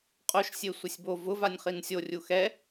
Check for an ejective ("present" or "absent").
present